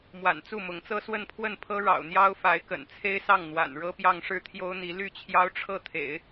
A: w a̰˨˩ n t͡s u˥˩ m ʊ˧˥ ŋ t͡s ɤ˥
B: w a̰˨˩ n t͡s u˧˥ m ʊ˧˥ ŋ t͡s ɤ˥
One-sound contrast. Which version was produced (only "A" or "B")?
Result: A